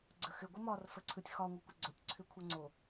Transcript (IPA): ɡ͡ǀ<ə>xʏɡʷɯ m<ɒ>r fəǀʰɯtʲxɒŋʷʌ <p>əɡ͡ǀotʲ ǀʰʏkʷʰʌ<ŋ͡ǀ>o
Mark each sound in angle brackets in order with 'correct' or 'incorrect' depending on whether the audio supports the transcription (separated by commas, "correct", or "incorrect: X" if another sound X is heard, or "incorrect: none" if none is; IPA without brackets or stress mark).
correct, correct, incorrect: kʷ, correct